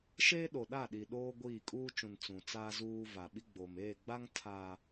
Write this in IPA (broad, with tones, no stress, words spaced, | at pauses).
ʃeː˦ɗo˨ɗa˦˨ɗi˨ ɗoː˦ ɡʷiː˦˨ kʼuː˦t͡ʃũ˨n t͡sũ˨t͡saː˦ zuː˦ va˨ɓi˦ɡ͡boː˨m eː˦˨ɡ͡ba˦ŋ tʰaː˨